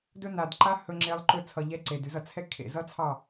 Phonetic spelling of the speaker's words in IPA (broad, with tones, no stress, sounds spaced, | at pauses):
d ɵ˦ n a˨ d ǃ a˦ h ɵ˧ ŋ͡ǁ e˧ lˠ ǃ ɵ˧ t͡sʰ ʌ˨ ʎ ɛ˧ ǀ e˨ d ʉ˧ z ʌ˨ t͡sʰ ɛ˦ kʰ ḛ˨ z ʌ˦ t͡sʰ ɑ˦˨